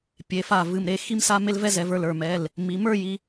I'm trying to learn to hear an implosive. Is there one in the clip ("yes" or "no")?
no